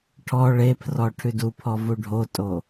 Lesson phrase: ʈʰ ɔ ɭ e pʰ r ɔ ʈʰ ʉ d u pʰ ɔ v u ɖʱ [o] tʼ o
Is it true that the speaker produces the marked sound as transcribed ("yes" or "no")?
yes